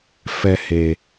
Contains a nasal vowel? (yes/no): no